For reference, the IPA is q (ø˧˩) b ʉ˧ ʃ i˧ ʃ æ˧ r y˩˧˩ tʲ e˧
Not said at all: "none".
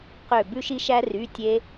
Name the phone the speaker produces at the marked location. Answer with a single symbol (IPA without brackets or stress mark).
ø˧˩